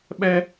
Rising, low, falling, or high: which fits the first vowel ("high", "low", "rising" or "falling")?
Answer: high